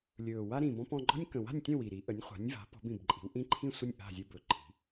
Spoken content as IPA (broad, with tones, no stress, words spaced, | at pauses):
lʲɵː˨˩ wa˦ɾĩ˨˩ bɔ̃˦pɔ̃˦ ɡ͡ǃɔ̤˦nʲkə̃˨˩wa̤˥˨nʲtʲə̃˥˨ wi˨˩ɾi˨˥ ʔə˨˥nʲχʷa̤˨˥nʲva̤˨˥ pɔ̤˨˥bĩ˨˩bǃʼi̤˨˥w ʔĩ˦ǃʰĩ˥˨sʷə˥˨nʲ ʔa̤˥˨zʲɯ˦bɵ˨˩ǃʰi̤˨˥